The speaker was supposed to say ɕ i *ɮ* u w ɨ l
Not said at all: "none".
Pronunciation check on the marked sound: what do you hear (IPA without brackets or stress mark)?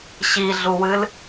ɮ